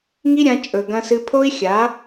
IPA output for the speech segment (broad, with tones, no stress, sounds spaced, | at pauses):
ŋ i˦ ɾʲ ã˧ t͡ʃʼ ɵ˨ ɡ ɐ̃˧ s ɨ˧ pʰ o˦ i̯ xʲ a˨˦